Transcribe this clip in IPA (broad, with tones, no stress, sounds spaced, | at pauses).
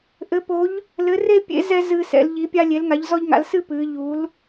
ʔ ɘ˧˥ p o˧˥ ʎ | l ɘ˧˥ r e˥ pʲ ḛ˧˥ z ɛ˥ z ɨː˥ s ɛ̰˧˥ l ʎ i˧˥ pʲ a˥ lʲ e˧˥ l ŋ a˧˥ ʎ z ɔ˥ ʎ ŋ a̰˧˥ l s ɨ˥ p ɨː˧˥ ʎ u˧˥ l